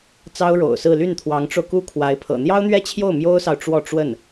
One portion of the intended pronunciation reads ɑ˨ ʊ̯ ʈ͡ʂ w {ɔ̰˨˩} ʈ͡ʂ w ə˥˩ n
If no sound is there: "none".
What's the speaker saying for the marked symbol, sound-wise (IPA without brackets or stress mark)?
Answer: ɔ˥˧